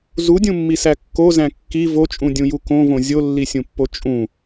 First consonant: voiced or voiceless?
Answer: voiced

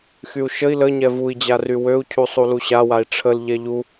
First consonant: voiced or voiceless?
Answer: voiceless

